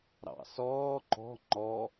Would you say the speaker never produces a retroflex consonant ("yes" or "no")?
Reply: yes